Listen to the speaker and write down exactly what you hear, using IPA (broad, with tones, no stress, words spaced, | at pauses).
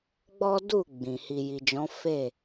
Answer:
ɡ͡bɔ˦du˦˨ ɡ͡bĩ˨ hi˨ji˨d͡ʒɔ̃˨˦fe˦˨